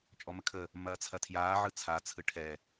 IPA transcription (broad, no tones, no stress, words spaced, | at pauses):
t͡ʃʼɔməkʰə | mɐːt͡sʰɐtʰjaː ʕɯt͡sʰa t͡sʰɯʈʰɛ